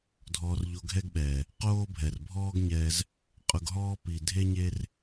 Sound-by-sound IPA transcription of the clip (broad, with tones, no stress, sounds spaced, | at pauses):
dʱ ɔː˧ r ʎ o˧ ɡʱ ɛ˦ ɡ ɓ ɛː˨ | q oː˦ bʱ ɛ˨ r bʱ ɔː˦ ɡ ɲ ɛː˧ z | qʼ ʊ˧ ɡ ɦ ɔː˦ p i˨ dʱ e˦ ɲ e˦ r